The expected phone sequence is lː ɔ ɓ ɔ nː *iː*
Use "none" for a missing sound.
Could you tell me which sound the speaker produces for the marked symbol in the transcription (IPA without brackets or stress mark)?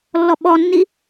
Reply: i